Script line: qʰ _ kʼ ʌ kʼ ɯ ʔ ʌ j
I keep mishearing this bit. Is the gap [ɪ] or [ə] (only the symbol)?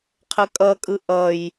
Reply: ə